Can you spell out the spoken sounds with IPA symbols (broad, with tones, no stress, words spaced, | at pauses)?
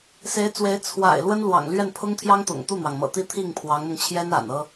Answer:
se˧˥ɪ̯t͡swe˧˥ɪ̯ t͡sʰwa̰˨˩ɪ̯ lwə˥nlwɑ̰˨˩ŋlɥɛ˥˩n pʰʊ˥ŋt̪ʰjɑ˥ŋt̪ʊ̰˨˩ŋ t̪u˥˩n̪wɑ˩ŋ mɤ̰˨˩t̪i˥ t̪ʰi˥˩ŋpʰwɑ˧˥ŋn̪ʊ˧ŋt͡ɕʰjɛ˥n a̰˨˩n ɤ˥